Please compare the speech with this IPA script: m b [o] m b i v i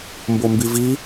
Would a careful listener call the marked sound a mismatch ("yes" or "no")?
no